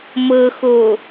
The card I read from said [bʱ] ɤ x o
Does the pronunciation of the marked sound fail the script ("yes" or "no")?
yes